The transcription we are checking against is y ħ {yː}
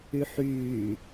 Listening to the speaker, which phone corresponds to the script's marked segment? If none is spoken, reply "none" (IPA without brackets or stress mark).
yː